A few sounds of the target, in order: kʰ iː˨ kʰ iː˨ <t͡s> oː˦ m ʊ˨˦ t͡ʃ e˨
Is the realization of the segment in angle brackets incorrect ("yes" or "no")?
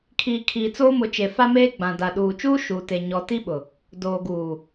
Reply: no